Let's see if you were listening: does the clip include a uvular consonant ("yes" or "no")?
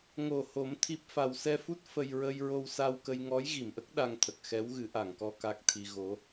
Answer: no